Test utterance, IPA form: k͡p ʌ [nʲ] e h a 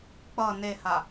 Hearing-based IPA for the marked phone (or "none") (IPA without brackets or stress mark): n